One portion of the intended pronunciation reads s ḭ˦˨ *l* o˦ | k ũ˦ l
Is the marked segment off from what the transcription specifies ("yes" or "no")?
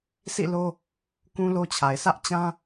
no